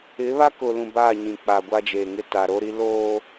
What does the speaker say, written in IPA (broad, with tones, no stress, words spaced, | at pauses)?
ɪ˨˦ βa˦kʊ˨lũ˨ baː˦˨ɲĩ˨ k͡pa˨ɡʷa˦d͡ʒeː˨ŋɪ˦ ta˨ɾo˦ɾi˦ loː˦